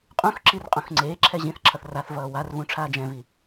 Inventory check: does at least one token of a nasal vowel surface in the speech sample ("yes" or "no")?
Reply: yes